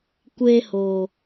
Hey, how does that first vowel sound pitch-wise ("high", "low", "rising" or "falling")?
high